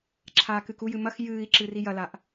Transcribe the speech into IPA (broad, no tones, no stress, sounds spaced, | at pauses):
ǁʰ aː k ɨ k u j ɨ m ɐ x j ɨː i̯ ǁ ɨ r i j ɐ l a ʔ